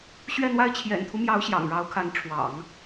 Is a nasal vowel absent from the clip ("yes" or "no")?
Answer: yes